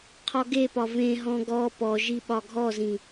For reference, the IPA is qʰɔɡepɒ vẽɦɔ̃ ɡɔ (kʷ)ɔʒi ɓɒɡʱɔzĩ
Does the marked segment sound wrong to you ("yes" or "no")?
yes